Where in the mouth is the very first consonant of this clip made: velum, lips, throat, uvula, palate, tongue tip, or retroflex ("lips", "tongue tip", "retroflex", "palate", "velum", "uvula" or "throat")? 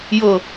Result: palate